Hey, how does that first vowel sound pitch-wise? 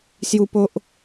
high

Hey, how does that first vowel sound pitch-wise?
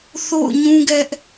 falling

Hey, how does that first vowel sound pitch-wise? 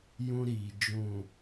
high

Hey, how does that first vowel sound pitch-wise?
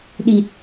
low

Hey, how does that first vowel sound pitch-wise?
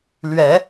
rising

